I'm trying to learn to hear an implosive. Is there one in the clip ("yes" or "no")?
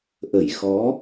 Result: no